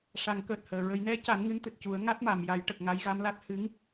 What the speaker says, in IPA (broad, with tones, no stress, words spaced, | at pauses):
ʂa˨˩˦ŋkəː˨˩t̚həː˨˩˨ ɹə˨˩˦jnɛ˧˥ca˨˩˦nŋɨ˧˥n t̪ɨ˨˩t̚cu˨˩˦ə̯ ŋa˦˥t̚ma˨˩˨mja˨˩˦jʈə˨˩k̚ ŋa˧˥jɣa˧˥mla˦˥t̚ hɨ˧˥ŋ